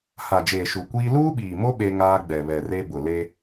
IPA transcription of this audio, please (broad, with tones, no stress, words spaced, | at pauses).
ha˨d͡ʒeː˨ʃu˨kʷiː˦ luː˦ɓiː˨mo˦ ɓe˦ŋaː˦ ɡ͡bɛ˨βɛ˨re˦ bʊ˨le˦